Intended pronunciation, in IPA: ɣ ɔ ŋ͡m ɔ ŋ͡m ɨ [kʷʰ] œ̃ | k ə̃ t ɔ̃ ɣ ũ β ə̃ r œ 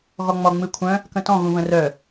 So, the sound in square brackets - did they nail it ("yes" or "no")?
yes